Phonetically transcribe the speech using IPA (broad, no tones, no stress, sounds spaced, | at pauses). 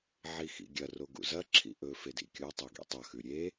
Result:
ʕ i x ḭ ɡʲ ɐ r o ɡ ṵ z ɐ ǁʰ ḭ ʔ ɵ f e d ḭ kʲ o tˤ e ɡ ḭ tˤ ɐ x ʉ ɾʲ e